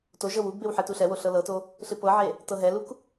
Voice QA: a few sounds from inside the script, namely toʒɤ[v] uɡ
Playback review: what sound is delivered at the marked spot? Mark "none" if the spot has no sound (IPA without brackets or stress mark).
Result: w